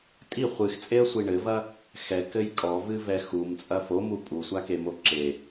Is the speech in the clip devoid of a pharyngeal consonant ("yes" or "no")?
yes